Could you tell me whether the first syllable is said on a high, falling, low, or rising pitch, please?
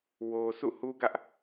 low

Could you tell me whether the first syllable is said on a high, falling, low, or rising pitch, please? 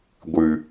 low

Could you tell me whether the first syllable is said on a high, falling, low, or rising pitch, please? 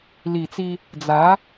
low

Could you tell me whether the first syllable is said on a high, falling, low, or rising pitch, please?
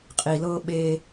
low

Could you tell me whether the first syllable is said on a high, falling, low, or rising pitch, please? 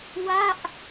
falling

